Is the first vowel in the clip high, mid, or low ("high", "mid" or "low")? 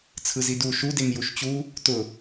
high